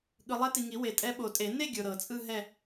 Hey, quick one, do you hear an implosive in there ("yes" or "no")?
yes